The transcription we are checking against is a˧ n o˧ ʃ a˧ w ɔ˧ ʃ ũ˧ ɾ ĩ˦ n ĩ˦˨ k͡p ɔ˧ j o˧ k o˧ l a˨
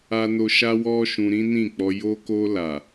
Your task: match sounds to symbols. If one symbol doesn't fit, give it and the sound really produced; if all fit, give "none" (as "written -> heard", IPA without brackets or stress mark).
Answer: none